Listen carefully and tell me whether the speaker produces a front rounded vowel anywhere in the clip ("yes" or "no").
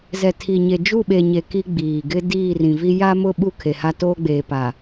no